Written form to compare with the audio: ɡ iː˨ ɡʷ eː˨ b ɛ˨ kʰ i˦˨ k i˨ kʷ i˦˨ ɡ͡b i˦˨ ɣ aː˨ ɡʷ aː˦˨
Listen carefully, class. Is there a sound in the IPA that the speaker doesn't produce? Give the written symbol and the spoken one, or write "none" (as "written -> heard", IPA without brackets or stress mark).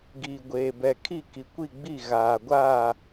none